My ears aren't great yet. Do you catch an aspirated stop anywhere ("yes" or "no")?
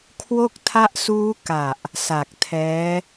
yes